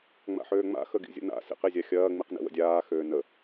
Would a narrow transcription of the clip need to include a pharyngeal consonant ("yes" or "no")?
yes